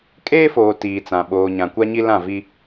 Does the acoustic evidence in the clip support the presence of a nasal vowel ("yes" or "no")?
yes